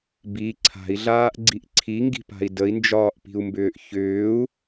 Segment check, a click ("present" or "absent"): present